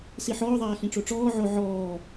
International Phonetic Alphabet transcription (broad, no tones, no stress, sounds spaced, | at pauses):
s i ħ ɔː ðˤ aː x ĩ ʈ͡ʂ o ʈ͡ʂ ɔː ʕ o ʕ ɔː